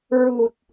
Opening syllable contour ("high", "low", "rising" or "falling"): low